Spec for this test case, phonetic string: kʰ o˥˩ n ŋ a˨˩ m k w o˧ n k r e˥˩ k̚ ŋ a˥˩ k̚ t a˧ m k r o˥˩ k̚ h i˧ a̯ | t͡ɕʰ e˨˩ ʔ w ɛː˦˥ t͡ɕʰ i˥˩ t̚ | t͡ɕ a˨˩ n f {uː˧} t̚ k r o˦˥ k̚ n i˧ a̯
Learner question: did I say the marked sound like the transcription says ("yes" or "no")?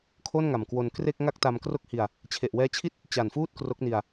no